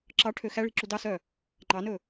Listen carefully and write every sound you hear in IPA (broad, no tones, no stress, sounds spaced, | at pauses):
ǁ ɑ ʈʰ ø x æ ɭ i̤ ǁ u d ɑ s œ | ŋ͡ǃ ɑ n ɵ